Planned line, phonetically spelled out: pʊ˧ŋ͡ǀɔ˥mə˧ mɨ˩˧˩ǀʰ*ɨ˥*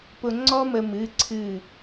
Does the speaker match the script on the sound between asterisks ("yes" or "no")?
no